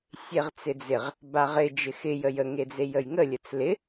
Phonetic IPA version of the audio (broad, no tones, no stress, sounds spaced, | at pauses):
sʲ e ʁ t͡s ɪ d͡z ɪ ʁ | b a ʁ ɪ d͡ʒ ɪ x ɪ j ə j ə ŋ e d͡z e j ə j ŋ ə lʲ ə t͡s l ɪ